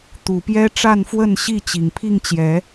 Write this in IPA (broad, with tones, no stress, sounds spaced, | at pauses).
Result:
t̪ u˨˩ p j ɛ˦ ʈ͡ʂ a˥˨ n f w ə˥˨ n ɕ i˥˨ t͡ɕ i˨˩ ŋ pʰ i˥˨ ŋ t͡ɕ j ɛ˨˦